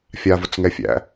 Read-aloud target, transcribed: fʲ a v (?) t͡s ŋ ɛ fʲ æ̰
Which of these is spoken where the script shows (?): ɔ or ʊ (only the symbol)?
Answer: ʊ